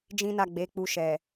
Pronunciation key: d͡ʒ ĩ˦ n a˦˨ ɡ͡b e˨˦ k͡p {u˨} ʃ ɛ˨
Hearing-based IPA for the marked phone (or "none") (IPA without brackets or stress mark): u˧